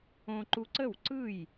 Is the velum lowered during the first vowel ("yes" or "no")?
yes